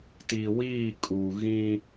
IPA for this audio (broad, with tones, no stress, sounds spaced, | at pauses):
t i˨ w iː˦˨ kʼ u˨ ɣ ĩ˦